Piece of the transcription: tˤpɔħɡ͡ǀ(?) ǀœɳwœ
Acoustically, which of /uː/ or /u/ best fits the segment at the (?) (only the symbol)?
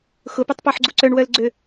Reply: u